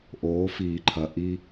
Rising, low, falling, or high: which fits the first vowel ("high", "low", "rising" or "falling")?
rising